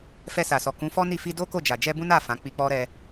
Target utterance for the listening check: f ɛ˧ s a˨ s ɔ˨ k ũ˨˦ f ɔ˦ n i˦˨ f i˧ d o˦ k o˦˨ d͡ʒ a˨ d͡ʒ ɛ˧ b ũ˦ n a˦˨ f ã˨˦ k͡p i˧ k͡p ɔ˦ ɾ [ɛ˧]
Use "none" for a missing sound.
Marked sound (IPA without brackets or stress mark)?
ɛ˧